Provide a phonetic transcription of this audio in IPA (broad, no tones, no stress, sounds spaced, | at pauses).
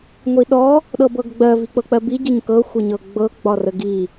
ŋʷ i ɗ ɔ | ɗ ɤ b ɤ ɡ ɡ͡b ɜ v i k͡p ɤ k͡p ɜ b i ɟ ə ɲ k ɤ xʷ ə ɲ ɤ ɡ͡b ɤ ɡ͡b ɒ r ə ɡ i